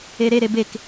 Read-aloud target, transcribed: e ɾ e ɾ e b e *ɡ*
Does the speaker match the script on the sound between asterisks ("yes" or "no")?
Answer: no